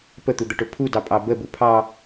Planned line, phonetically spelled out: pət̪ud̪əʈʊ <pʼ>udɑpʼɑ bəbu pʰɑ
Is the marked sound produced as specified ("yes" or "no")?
no